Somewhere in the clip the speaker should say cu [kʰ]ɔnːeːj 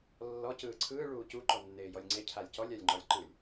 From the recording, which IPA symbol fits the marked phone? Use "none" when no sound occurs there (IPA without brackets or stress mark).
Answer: ǃ